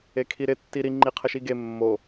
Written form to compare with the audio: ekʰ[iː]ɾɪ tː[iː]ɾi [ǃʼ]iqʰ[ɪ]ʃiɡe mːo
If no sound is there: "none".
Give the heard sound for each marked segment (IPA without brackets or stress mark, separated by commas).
i, i, ŋ͡ǃ, ə